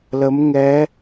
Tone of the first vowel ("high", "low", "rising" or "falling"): rising